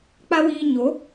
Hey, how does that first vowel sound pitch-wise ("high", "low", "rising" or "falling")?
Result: high